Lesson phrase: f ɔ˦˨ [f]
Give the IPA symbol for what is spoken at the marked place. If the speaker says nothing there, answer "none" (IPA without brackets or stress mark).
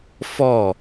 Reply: none